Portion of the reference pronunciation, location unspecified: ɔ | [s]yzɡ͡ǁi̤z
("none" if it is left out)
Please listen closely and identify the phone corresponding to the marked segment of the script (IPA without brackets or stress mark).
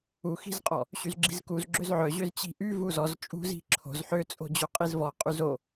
ɕ